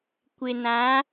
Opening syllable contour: low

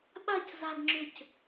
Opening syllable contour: falling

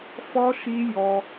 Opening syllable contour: high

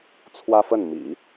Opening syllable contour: high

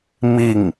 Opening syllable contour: falling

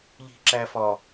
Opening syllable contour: low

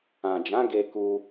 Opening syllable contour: low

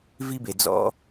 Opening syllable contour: high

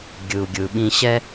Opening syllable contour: low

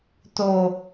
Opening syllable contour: low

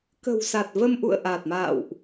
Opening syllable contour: low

